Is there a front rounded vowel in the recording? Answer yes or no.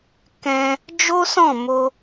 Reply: no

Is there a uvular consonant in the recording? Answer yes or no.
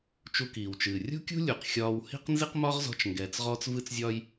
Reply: yes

